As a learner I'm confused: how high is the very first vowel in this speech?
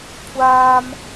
low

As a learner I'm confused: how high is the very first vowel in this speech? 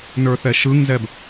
mid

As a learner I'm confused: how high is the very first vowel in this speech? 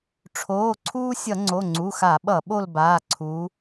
mid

